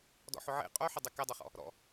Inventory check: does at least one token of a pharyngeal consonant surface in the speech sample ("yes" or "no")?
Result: yes